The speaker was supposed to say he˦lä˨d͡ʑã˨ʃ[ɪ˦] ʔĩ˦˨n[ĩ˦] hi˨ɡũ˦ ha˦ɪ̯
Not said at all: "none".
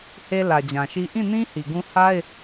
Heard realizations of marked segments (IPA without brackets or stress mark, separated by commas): i˦, ĩ˦